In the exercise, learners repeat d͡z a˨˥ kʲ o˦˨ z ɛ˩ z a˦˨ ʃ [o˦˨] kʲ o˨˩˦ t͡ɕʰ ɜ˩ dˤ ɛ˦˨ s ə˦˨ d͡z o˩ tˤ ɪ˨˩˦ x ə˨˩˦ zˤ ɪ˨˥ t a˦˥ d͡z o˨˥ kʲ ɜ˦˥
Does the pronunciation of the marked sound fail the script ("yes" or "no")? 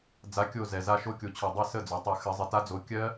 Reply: no